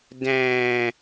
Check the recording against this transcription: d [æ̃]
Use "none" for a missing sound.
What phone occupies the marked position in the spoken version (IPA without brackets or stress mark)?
æ̃